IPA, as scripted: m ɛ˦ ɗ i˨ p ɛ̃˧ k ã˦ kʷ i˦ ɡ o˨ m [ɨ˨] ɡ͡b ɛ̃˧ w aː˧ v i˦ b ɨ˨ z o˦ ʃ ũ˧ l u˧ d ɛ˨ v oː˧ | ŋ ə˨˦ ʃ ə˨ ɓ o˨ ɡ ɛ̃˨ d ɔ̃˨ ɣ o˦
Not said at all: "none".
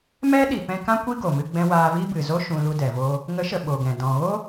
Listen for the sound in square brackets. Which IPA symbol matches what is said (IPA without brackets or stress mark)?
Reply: ɨ˧